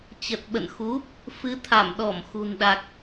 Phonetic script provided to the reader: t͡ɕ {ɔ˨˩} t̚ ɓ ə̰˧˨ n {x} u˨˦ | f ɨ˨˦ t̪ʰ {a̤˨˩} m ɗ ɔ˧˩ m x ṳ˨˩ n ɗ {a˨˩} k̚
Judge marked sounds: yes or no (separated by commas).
no, yes, no, yes